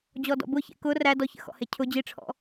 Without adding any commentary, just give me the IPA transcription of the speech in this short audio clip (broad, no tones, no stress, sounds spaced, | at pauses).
d͡ʑ ɔ d ɔ̰ b ʊ ç ḛ k ʊ r æ d ɔ ç ə̰ x ɔ̰ h e cʰ ʊ d͡ʑ i ʈ͡ʂʰ ɔ̰